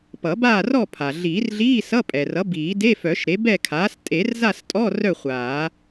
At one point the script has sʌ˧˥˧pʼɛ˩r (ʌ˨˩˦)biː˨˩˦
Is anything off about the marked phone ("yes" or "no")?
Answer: yes